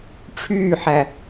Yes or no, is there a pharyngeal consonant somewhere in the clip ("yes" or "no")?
yes